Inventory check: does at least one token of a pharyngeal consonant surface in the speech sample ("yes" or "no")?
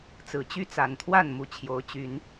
no